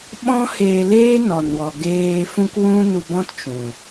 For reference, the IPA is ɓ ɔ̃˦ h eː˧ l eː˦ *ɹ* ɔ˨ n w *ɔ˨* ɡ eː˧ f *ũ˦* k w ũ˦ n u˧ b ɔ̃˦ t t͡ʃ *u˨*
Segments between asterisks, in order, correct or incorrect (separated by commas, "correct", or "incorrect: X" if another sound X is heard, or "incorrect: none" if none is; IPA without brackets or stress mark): incorrect: n, correct, correct, incorrect: ũ˨